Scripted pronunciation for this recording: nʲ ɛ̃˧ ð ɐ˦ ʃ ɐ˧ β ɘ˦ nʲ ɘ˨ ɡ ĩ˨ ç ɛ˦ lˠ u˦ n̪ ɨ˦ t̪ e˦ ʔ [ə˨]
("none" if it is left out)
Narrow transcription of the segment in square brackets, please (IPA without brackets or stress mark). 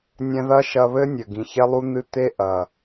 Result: ɐ˨